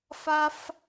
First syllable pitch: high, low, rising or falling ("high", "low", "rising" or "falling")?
high